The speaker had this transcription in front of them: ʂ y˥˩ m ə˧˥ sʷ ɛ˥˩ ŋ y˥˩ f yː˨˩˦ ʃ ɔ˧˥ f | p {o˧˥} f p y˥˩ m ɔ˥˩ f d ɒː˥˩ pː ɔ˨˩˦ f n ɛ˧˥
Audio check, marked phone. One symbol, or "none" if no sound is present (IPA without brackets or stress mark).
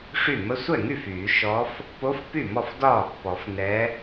o˧˥